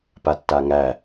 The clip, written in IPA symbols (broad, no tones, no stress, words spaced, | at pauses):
patːaŋæ